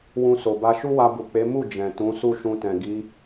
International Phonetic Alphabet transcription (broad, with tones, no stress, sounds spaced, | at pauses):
w ũ˧ s o˨ b a˧ ʃ u˦ w a˧ b u˨ k͡p e˨˦ m u˦˨ d͡ʒ ɛ̃˨ t ũ˨˦ s u˦˨ ʃ ũ˧ t ɛ̃˨ ɡ i˨˦